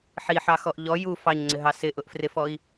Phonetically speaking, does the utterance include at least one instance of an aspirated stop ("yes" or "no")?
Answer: no